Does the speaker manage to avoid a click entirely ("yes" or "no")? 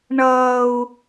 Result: yes